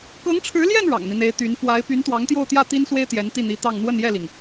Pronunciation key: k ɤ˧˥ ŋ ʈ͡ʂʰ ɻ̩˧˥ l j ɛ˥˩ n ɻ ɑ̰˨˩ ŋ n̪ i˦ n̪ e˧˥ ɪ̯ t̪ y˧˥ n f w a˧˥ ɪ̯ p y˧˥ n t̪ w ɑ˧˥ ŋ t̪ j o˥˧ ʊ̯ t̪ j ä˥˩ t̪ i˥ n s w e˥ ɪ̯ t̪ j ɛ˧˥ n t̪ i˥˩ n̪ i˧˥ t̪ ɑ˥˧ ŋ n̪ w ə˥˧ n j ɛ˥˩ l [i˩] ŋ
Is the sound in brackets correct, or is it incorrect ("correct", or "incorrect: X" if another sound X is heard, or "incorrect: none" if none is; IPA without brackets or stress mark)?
correct